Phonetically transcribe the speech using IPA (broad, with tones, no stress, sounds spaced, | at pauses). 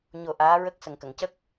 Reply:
ɲ o˨˩˦ ʔ aː˧˥ ɹ ə˦˥ k̚ s ə˨˩ ŋ k ə˨˩˨ ŋ c ə˦˥ k̚